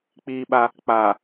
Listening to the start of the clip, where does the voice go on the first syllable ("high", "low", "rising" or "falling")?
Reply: high